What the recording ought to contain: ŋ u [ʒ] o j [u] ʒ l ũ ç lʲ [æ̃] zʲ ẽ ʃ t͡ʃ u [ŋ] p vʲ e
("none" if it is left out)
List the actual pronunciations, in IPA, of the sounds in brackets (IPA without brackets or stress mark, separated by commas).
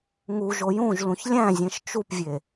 ʒ, ũ, æ̃, none